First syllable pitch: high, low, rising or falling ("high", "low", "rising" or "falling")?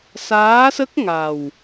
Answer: rising